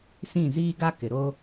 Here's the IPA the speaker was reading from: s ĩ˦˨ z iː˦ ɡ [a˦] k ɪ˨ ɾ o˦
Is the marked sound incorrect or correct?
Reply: correct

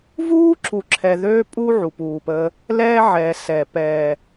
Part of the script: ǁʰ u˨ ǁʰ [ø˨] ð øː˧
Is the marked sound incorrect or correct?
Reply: incorrect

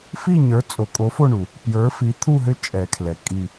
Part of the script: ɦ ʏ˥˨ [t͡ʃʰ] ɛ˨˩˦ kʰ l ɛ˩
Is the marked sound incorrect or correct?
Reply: incorrect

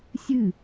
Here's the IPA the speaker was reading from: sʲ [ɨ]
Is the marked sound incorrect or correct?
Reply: correct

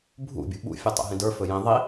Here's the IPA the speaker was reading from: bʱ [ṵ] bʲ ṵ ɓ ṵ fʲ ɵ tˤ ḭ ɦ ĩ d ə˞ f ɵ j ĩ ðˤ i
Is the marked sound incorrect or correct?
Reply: correct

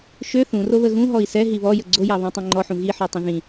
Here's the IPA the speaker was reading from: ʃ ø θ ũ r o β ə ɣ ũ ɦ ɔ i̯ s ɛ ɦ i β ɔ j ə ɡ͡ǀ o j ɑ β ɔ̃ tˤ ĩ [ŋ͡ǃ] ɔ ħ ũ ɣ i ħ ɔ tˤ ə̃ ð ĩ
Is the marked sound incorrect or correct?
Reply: correct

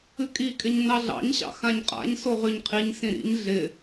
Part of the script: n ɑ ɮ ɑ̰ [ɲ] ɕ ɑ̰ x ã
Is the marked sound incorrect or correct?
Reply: correct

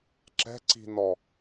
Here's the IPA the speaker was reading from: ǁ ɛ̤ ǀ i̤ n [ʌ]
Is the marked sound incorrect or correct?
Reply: incorrect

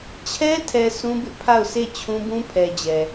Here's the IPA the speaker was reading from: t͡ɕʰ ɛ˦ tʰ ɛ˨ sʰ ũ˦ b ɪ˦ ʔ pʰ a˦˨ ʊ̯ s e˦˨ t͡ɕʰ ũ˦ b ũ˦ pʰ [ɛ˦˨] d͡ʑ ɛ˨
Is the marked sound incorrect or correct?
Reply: incorrect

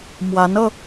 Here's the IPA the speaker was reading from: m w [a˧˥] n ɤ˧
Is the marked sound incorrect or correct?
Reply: correct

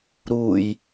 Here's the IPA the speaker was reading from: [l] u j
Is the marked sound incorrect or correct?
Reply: incorrect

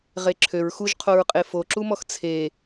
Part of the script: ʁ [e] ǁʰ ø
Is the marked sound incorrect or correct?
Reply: correct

